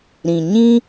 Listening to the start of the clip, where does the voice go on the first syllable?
low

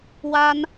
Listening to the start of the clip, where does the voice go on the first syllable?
high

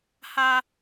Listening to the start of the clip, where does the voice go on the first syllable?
high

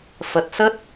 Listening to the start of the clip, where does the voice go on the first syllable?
low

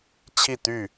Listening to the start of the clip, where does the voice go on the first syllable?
falling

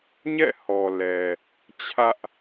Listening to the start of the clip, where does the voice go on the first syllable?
falling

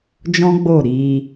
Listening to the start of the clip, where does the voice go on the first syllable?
high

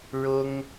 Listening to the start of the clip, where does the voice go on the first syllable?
high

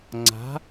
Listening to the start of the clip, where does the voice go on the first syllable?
rising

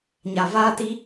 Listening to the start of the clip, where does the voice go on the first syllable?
low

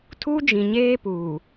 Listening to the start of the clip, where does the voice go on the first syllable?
high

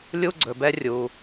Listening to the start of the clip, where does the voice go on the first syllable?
high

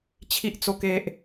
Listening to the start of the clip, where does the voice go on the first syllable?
high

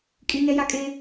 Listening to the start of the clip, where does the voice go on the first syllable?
high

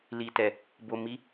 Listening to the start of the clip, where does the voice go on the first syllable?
low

